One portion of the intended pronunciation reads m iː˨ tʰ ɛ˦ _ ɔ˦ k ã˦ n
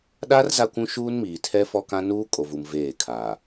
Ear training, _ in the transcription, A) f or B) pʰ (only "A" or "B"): A